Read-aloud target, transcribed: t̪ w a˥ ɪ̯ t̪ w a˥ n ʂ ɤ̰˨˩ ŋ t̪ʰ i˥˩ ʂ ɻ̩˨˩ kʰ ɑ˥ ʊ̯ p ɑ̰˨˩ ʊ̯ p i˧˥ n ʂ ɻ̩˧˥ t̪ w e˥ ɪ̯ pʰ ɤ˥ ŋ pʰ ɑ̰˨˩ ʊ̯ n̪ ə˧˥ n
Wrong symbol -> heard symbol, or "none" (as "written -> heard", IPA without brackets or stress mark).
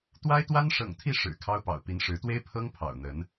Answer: none